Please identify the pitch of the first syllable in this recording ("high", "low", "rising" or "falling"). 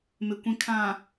low